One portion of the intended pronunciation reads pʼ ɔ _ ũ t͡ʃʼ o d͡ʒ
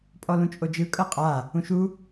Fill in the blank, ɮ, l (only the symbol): l